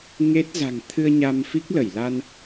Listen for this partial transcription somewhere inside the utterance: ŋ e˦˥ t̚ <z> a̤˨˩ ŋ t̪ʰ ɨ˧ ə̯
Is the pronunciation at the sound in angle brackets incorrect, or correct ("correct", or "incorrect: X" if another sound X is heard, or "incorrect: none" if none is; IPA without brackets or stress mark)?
correct